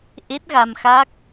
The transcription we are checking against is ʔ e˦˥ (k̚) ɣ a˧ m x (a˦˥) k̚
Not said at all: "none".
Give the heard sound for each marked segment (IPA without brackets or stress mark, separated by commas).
t̚, a˦˥